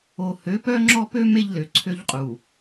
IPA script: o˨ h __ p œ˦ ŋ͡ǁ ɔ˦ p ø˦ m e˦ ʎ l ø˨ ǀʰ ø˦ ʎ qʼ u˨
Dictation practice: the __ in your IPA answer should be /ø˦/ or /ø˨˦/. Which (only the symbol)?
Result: ø˨˦